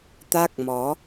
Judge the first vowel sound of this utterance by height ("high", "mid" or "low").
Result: low